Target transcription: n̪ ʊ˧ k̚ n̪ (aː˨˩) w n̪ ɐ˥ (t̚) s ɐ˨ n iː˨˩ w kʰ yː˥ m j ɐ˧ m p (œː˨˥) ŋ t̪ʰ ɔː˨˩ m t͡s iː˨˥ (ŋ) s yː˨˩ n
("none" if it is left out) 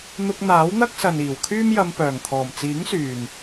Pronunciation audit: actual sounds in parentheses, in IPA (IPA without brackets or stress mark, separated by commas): aː˨˥, k̚, œː˨˩, ŋ